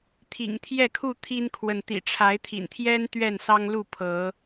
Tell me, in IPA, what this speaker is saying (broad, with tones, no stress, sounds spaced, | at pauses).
t̪ʰ ḭ˨˩ ŋ t̪ʰ j ɛ˥˨ kʰ u˥˨ t̪ʰ i˦ n kʰ w ə˨ n t̪ ḭ˨˩ ʈ͡ʂʰ a˨˦ ɪ̯ t̪ʰ ḭ˨˩ n t̪ʰ j ɛ˦ n t̪ ɥ ɛ˥˨ n s ɑ˦ ŋ l u˥˨ pʰ ɤ˨˦